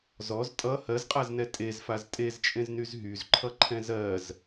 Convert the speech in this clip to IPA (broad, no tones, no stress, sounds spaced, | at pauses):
z ɔ z tʼ ʌ h ɜ z qʼ a z n ɛ tʼ e z f a z tʼ e z t͡ʃʼ ẽ z n y z ɦ y z ǃʰ ʌ ǃʰ ɛ̃ z ɜ z